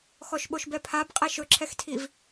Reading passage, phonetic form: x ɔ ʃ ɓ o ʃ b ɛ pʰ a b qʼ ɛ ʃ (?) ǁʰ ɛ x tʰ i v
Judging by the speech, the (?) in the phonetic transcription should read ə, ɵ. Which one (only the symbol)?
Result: ɵ